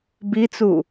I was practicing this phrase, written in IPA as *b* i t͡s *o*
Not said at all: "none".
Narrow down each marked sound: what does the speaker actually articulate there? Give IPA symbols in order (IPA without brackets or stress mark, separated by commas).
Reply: b, u